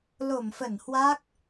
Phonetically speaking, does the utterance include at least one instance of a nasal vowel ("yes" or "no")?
no